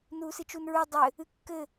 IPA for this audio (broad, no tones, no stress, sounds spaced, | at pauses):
n uː s ɨ t͡ʃ u n ɹ u dˤ ɘ | ɨ kː ɘ